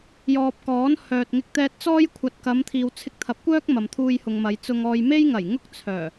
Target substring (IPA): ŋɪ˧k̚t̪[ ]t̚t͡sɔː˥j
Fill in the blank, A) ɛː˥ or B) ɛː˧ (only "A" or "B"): B